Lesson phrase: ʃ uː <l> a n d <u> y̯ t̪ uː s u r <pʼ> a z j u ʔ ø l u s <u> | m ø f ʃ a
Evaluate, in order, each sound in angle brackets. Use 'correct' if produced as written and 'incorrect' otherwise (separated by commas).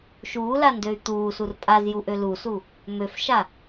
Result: correct, incorrect, correct, correct